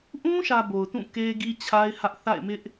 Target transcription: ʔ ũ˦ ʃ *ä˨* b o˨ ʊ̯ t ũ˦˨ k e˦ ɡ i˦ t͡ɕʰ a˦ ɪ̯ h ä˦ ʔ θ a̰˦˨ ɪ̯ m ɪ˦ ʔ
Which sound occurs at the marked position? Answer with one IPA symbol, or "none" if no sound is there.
ä˨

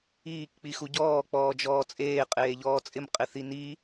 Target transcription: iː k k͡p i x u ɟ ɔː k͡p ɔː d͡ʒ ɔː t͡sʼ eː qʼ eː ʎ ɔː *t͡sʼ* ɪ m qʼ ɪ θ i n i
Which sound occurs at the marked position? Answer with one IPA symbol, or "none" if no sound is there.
t͡sʼ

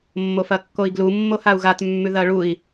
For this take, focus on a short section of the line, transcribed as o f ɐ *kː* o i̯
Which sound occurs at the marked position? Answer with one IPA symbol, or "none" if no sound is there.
kː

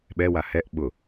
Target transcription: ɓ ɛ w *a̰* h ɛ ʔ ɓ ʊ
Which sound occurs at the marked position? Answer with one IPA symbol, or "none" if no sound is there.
a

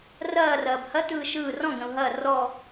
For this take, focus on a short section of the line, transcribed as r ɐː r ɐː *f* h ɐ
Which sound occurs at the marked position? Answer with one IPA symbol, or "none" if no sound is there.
b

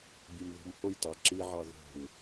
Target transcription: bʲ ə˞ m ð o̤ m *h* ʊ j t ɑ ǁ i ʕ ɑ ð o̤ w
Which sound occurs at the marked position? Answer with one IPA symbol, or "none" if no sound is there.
h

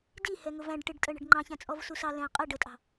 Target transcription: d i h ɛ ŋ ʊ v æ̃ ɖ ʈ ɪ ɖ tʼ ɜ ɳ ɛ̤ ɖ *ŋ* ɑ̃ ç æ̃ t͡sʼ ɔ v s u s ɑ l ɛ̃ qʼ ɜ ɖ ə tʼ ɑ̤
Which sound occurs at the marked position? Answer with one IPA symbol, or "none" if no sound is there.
ŋ͡ǃ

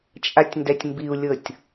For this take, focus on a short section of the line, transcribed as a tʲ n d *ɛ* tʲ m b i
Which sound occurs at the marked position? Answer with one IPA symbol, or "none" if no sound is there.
ɛ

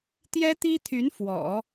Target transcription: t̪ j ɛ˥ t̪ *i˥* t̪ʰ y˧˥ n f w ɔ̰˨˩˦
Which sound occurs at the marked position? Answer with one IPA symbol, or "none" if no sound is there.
i˥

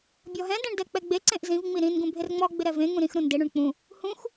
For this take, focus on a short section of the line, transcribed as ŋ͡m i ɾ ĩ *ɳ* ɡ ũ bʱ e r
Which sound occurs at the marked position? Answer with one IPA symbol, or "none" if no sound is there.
n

